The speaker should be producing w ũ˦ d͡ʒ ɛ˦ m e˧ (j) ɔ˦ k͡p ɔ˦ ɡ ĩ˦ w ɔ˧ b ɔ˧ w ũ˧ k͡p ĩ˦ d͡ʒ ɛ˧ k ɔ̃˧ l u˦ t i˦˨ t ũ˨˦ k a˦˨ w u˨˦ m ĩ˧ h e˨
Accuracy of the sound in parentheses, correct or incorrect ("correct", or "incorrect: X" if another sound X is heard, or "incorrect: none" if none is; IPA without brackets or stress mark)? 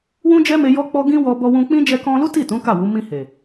correct